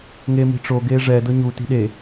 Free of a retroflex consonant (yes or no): no